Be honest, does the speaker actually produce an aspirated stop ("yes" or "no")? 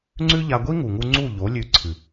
yes